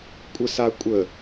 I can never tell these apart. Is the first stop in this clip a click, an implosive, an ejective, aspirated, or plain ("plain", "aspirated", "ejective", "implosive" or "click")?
ejective